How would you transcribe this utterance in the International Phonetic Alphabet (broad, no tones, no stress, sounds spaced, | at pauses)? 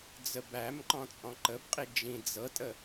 d͡z ə b æ m ǃ ɔ̃ t͡sʼ ɔ̃ ǃ ə b qʼ i d͡ʒ ĩ d͡z ɤ tʼ ə